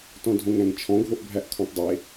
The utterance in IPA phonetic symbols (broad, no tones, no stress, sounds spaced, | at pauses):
t ɔ̃ dʱ õ ŋ æ̃ ŋ t͡ʃʰ ɔ̃ ɡʱ o ʔ bʱ æ ʔ kʰ ɔ̃ tˤ dˤ e